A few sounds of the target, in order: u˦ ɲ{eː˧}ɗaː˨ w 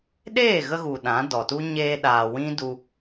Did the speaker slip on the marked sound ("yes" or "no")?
no